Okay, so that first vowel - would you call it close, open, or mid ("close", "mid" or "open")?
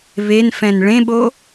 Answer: mid